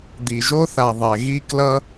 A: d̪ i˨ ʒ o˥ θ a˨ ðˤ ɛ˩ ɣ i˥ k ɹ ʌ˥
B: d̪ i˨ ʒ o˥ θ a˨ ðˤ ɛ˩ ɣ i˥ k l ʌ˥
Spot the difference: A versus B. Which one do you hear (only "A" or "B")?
B